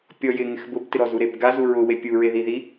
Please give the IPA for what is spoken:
pʲ ɔ j ɪ ŋ ɪ x b ʊ b t ɪ ɾ ɔ z u ɾ e b ɡ a z u ɹ ʊ w e pʲ u ɹ e ð i ð i

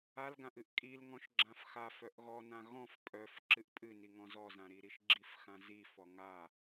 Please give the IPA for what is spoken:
a l ɡ ã ʔ ɨ ʔ kʼ i l ŋ ɔ̃ ʃ ɡ͡ǁ ã f x a f œ ʔ ɣ ɔ n ã ɣ ɔ̃ f pʼ œ f ǁ ɨ ʔ pʼ ɨ n i ŋ ɔ̃ z ɔ z ã ɾ i ɾ i ʃ ɡ͡ǁ i f x ã z i f ɔ ŋ a

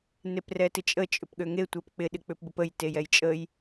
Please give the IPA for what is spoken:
n e p r ɛ t ɪ t͡ʃʼ ə t͡ʃʼ ʏ p ɠ ø ŋ e tʷ ɛ p k͡p ɪ ɗ ɪ k͡p ʏ p b ə p ə j t e j ɛ j t͡ʃʼ ə j

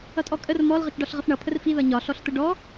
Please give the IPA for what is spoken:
ʌ tʼ ɔ kʼ ə r m ɔ l ʁ ə t͡ʃ ɖ ɒ ɬ ʁ ə f ɳ ʌ pʰ ə r f i ð ʌ ɲ ɒ ɬ ɔ ɬ t̪ ə ɖ ɔ

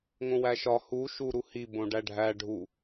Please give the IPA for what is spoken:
ŋ õ w æ ʃ ɒ h u ʃ u ɾ u h i b õ ɖ æ ɖʱ æ ɖʱ u

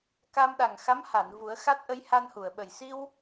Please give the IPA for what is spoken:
k a˧ m ɗ a˨˩ ŋ x a˧˥ m h a˨˩˨ n v u˨˩˦ ə̯ x a˦˥ t̚ ʔ ə˧˥ j h a˧ n h u˨˩˨ ə̯ ɓ ə˨˩ j s i˧ w

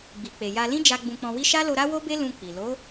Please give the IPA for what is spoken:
ɡ͡b i˨ k͡p e˨ j a˧ l ĩ˦ d͡ʒ a˧ ɡ͡b ũ˧ k͡p ɔ̃˧ w i˦ ʃ a˦ l o˧ ɾ a˦ w o˦ b e˦ l ũ˧ k͡p i˨ l o˨˦

